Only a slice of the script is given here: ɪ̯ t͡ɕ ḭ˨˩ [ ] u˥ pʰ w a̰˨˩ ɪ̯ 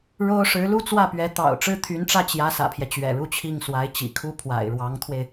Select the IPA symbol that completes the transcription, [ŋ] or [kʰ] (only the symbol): kʰ